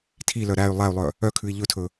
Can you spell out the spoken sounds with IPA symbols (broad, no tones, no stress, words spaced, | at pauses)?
tʰilœ ɾæy̯ lˠæy̯lˠœ | œkʰʉi̯ ʎɵtʰɵ